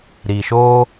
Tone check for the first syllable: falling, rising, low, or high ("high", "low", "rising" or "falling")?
low